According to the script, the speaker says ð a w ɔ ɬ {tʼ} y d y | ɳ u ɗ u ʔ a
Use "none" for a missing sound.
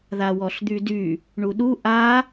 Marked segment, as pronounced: d̪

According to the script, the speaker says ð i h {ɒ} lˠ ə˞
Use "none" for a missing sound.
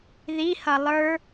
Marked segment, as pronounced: ʌ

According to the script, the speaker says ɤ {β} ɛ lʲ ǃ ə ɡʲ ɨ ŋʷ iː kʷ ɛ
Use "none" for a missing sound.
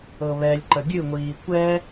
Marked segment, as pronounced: β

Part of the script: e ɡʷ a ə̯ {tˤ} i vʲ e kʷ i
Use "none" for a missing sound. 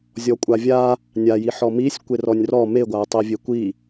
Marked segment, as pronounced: tˤ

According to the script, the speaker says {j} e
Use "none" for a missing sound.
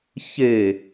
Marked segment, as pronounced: ç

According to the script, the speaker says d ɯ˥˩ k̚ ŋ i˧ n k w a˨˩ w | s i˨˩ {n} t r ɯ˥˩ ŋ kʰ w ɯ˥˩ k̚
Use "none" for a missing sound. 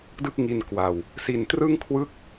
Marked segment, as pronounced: n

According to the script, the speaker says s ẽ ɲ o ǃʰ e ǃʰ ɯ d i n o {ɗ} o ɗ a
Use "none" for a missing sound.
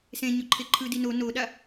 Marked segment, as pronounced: n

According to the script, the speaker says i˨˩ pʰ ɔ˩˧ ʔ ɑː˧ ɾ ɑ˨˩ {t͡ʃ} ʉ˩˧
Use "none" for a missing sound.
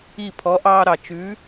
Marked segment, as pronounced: t͡ʃ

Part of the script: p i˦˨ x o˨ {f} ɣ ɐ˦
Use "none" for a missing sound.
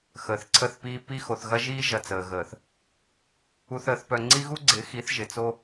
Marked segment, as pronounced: θ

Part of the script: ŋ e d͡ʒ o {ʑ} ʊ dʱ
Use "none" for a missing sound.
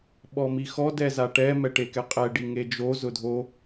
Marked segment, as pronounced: z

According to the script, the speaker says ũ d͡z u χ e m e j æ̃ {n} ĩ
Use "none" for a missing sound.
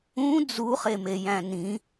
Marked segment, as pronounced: n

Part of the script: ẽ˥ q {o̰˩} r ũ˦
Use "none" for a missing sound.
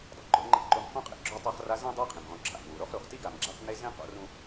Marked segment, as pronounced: o̰˥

